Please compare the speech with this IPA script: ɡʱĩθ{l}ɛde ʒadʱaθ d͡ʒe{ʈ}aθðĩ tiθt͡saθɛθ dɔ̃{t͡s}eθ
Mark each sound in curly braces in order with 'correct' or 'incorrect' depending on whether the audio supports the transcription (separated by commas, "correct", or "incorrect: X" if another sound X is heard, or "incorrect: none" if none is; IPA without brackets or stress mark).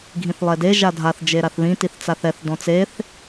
incorrect: lˠ, incorrect: ɾ, correct